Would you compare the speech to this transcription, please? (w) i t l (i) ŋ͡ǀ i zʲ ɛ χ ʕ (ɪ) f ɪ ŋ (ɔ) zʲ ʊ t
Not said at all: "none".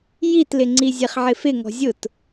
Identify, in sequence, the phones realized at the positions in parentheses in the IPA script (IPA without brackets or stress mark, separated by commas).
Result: j, ɪ, ɪ, ɔ̤